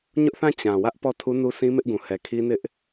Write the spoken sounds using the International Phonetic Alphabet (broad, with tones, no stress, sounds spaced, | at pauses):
ɲ ʊ˦ ʔ θ ã˦˨ t͡ɕ ã˨ w ä˦ ʔ p ɔ˦˨ tʰ u˦ n u˦ sʰ ĩ˦ m ɪ˦ ʔ ɡ ũ˨ h ɛ˨ kʰ i˦ n ɪ˦ ʔ